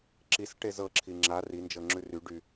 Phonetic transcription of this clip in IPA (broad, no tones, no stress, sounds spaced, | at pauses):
ǁ i s ʈ e z ɤ ǁʰ i ŋ͡ǁ a r i n d͡ʒ ɤ ŋ͡ǁ ʉ r y ɖ y